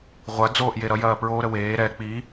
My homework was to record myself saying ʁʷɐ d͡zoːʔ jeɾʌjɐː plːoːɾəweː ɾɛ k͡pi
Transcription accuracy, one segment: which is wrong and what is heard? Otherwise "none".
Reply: lː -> ɹ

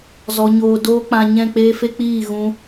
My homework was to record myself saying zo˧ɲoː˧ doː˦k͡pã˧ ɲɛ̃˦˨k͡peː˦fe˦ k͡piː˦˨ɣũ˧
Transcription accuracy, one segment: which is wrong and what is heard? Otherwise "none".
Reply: o˧ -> ɔ˧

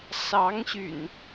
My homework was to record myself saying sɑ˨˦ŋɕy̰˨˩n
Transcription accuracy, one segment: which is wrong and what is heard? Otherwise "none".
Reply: none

